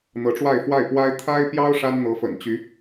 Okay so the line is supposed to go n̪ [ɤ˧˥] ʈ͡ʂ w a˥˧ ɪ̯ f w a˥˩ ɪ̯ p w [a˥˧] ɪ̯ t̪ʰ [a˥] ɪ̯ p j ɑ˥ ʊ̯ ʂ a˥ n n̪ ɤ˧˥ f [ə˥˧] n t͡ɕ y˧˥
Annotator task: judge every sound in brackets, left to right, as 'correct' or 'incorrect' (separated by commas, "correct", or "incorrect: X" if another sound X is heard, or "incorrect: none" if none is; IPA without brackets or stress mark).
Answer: correct, incorrect: a˥, correct, incorrect: ə̰˨˩